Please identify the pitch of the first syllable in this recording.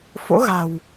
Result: rising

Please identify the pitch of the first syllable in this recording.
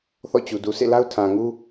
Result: falling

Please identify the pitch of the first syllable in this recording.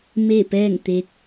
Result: falling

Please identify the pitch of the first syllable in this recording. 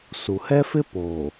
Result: low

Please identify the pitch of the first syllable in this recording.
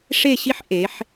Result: falling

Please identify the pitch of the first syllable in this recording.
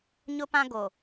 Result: high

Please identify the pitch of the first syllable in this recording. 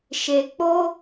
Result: low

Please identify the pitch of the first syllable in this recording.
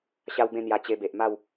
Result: high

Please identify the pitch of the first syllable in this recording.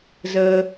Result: low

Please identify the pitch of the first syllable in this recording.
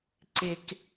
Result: low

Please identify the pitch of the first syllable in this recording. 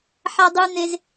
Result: high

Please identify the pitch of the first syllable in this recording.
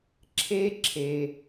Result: high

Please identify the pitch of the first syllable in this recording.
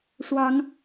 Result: rising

